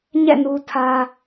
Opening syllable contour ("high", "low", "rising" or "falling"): falling